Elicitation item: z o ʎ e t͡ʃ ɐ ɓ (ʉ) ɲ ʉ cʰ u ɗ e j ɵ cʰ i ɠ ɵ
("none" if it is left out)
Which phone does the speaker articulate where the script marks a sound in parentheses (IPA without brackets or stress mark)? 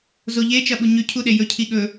u